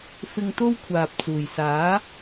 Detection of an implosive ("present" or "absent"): absent